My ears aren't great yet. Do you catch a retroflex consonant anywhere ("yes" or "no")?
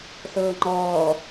no